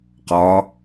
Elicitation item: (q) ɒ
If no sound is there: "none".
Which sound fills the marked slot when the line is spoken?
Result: q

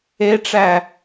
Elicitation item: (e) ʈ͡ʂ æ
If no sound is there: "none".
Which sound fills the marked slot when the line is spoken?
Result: e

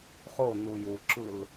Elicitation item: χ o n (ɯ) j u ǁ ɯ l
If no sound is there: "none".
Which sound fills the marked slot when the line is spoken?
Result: u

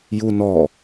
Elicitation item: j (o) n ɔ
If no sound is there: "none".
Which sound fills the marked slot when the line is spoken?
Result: u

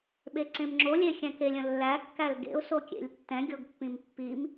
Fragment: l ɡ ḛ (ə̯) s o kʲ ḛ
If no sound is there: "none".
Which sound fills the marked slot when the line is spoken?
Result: ʊ̯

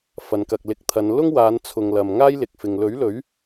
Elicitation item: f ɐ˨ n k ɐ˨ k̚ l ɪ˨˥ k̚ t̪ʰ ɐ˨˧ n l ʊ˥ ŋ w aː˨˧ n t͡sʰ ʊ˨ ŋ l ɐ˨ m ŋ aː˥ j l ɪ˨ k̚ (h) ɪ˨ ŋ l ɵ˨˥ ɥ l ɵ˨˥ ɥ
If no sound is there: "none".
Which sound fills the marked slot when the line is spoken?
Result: f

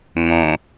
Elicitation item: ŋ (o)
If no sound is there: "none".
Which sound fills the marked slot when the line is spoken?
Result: õ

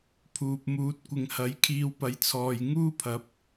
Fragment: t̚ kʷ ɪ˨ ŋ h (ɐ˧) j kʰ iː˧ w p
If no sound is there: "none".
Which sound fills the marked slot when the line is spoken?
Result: ɐ˨˥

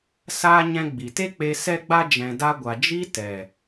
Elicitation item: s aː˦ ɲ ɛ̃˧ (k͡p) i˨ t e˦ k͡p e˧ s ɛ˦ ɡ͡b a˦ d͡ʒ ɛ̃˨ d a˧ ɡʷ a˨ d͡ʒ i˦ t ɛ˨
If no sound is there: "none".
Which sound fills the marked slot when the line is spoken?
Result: ɡ͡b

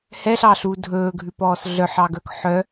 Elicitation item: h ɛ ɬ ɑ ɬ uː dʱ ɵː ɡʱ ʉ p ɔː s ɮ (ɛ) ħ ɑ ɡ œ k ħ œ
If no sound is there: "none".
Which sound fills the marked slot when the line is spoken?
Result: œ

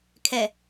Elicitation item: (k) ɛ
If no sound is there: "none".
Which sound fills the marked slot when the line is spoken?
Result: kʰ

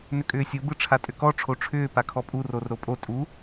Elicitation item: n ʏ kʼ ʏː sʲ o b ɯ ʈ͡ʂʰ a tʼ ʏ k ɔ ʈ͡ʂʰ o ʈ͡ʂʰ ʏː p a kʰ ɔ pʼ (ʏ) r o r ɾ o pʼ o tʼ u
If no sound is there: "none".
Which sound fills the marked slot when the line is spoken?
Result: u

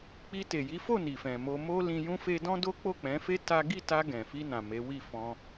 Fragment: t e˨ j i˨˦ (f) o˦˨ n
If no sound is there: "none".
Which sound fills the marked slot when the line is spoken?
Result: f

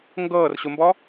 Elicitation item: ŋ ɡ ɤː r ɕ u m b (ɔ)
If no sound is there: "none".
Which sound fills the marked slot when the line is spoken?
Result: ɔ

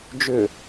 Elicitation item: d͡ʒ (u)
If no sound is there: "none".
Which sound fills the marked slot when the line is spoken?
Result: ʏ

